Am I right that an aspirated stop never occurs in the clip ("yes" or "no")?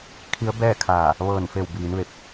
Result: no